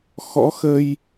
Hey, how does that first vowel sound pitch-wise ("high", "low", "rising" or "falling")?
rising